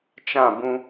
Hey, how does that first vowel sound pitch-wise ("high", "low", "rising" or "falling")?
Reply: falling